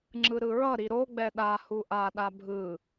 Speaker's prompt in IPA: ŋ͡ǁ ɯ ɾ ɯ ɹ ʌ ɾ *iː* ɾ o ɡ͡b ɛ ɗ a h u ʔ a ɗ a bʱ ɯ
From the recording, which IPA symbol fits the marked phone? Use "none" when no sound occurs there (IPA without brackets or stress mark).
i